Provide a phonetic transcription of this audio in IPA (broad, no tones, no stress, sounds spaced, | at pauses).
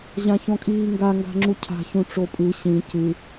ʑ ã ç ɔ̃ kʼ iː ŋ ɡ a ŋ ɡ a̤ ŋ͡ǁ u cʰ a̤ ç ũ ʈ͡ʂ o pʼ ɯ ɕ ĩ c ɯ